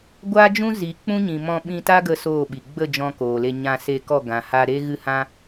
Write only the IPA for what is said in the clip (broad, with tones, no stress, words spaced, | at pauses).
ɡʷaː˦d͡ʒũ˦zi˨˦ k͡pũ˦ɲĩ˨mɔ̃˧ ɓĩ˧ta˦ ɡə˦soː˦˨ɓi˨ ɡ͡bə˦˨ d͡ʒɔ̃˧koː˨le˧ ɲã˧se˧kɔ˦˨ ɡã˨ha˧ ɾe˦ɣɨ˦hã˦